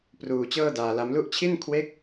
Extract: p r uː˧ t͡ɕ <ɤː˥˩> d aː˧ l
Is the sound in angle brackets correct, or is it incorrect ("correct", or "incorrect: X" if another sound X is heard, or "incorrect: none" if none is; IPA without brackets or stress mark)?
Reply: correct